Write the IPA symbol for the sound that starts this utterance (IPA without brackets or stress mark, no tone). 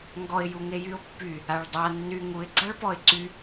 ŋ